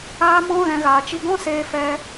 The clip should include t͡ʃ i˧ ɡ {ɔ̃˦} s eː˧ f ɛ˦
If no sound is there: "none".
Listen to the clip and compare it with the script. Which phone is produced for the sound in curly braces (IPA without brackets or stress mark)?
ɔ̃˦